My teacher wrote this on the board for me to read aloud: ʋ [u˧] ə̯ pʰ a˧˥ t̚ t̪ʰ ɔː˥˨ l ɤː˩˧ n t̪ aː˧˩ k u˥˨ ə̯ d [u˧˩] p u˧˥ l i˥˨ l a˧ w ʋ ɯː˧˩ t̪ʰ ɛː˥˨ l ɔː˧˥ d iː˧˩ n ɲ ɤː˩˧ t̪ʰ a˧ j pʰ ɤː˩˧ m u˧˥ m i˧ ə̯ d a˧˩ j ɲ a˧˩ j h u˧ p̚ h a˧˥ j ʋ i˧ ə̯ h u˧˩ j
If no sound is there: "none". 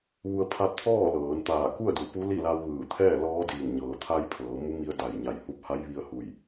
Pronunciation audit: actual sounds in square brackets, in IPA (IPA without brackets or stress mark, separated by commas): u˧, u˧˩